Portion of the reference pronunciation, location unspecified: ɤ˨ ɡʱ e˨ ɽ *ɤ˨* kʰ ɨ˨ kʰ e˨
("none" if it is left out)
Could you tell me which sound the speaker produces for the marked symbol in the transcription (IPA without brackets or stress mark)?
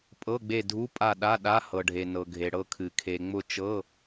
ɤ˦˨